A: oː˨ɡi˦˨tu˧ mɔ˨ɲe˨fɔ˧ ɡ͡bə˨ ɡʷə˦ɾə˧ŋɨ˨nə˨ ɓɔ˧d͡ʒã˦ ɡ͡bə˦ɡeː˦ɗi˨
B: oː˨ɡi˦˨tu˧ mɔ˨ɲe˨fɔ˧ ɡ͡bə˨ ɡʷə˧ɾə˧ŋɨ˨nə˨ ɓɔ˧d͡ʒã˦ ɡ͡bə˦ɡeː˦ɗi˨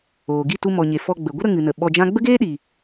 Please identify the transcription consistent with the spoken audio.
A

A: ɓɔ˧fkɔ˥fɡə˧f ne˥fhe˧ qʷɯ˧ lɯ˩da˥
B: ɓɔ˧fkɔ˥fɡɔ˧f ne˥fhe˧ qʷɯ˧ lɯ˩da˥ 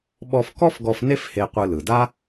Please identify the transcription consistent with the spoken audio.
B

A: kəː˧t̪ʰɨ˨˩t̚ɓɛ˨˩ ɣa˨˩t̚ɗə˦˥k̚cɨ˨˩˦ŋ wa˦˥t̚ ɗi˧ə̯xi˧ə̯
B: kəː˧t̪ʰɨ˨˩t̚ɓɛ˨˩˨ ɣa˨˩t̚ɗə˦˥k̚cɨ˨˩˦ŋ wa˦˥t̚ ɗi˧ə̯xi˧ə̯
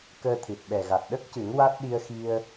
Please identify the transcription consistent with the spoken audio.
A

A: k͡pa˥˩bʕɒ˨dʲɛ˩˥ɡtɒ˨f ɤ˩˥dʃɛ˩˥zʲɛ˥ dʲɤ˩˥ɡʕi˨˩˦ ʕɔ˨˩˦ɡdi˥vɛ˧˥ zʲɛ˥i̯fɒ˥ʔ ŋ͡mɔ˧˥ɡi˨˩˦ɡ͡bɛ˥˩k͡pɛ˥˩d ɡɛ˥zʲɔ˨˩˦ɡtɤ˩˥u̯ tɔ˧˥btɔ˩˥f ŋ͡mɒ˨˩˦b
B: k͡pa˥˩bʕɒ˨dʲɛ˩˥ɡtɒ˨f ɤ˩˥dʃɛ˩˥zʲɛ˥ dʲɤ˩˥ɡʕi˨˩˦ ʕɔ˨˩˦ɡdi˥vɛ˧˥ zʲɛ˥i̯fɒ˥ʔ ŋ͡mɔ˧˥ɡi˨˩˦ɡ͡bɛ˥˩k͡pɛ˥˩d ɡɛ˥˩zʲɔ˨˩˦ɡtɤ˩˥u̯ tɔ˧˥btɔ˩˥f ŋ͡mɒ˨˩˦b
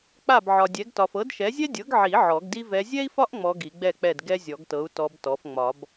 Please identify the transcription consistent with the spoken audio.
A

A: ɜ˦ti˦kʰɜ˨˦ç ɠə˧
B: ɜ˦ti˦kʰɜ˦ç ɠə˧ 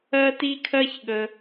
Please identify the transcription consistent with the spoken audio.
B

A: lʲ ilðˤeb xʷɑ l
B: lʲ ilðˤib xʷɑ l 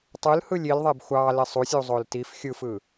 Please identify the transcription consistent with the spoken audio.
A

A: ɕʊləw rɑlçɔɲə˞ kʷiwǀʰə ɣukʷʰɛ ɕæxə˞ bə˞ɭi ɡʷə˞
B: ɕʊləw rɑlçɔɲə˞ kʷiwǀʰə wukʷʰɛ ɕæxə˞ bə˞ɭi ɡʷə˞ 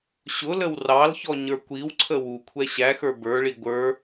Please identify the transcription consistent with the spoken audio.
B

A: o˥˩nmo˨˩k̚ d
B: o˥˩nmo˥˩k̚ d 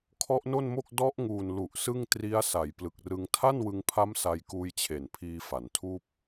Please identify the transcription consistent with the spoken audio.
B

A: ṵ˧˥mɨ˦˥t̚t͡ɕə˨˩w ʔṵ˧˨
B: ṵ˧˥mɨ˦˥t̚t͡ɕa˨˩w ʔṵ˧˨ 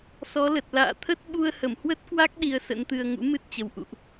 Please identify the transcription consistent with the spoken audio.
A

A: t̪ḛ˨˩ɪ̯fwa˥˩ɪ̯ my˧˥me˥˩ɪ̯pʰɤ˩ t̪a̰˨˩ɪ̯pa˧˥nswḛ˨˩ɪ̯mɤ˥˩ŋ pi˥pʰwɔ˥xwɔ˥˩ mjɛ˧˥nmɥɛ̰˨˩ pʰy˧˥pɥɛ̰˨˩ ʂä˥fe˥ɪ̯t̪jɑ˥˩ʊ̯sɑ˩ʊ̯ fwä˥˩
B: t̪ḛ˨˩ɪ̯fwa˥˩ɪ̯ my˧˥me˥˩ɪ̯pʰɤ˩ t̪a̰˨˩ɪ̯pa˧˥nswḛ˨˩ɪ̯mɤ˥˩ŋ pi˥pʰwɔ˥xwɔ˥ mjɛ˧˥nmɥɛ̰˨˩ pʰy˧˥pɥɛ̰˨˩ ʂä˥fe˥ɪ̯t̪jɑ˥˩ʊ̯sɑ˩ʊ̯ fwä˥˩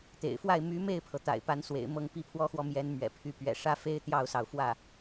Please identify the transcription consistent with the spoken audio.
A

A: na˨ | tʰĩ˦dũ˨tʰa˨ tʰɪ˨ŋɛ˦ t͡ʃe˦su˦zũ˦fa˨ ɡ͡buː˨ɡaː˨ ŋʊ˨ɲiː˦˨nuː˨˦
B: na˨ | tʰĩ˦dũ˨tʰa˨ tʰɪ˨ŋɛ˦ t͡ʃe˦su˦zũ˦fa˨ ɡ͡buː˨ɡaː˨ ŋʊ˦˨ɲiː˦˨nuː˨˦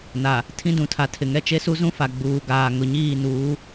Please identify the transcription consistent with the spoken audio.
A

